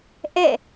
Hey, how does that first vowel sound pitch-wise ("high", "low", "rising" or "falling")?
falling